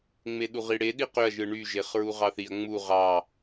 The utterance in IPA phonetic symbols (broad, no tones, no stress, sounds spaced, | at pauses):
ŋ͡m e ɗ u ʁ i ɽ e ɗ i q ø ɐ̯ ʒ ɯ ɳ y ʒ e χ ɹ u ʁ ɑ θ i ɐ̯ ŋ͡m u ʁ ɑ